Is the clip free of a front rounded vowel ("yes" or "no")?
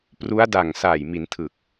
yes